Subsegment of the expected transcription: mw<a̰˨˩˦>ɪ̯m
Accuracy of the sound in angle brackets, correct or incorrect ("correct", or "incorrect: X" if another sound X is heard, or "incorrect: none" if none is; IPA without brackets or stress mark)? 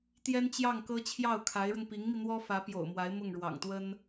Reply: incorrect: a˧˥